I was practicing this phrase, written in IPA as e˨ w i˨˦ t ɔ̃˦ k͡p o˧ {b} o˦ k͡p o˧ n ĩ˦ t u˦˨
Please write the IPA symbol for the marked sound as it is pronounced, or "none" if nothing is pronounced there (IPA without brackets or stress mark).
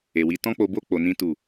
b